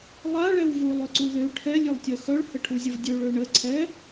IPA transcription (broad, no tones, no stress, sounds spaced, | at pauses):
lˠ a ɭ ɛ w v u lˠ ø ǀ u ð ø ʈʰ ɛ lʲ ø lˠ tʲ œ x œ ɭ h ə ʈʰ u zʲ ə v dʲ ø ɭ ø ɳ ə ǀʰ ɛ